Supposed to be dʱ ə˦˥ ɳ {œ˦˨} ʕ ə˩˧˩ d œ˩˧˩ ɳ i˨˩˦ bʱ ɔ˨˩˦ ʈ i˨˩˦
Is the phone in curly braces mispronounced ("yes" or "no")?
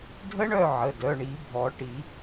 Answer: no